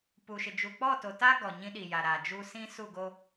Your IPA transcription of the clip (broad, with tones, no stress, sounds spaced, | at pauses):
p u˨ ʃ ɪ˨ d͡ʒ u˨ k͡p ɔ˦˨ t o˨ t a˦ ɡ ɔ˨ ɲ ĩ˦ ɗ i˨ j a˨ ɾ a˨ d͡ʒ u˦ s ĩ˦ s u˦˨ ɡ o˦